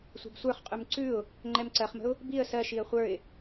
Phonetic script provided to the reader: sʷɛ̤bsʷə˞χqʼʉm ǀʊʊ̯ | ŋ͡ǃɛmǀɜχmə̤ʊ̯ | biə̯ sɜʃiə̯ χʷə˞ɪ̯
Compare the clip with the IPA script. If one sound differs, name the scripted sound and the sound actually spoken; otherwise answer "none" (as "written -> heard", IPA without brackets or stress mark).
ʊ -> ʉ